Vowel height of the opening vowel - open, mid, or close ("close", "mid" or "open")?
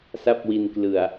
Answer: open